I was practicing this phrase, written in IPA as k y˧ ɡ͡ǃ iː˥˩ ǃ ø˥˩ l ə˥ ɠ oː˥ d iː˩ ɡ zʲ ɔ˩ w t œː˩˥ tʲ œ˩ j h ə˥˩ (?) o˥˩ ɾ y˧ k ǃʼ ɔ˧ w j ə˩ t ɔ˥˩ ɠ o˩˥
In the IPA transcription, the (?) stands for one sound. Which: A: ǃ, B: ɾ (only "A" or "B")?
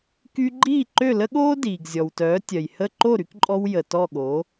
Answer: A